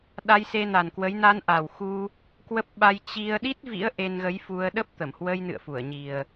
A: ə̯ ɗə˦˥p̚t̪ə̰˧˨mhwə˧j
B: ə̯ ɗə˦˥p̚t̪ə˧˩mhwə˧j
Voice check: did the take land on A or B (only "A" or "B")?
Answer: B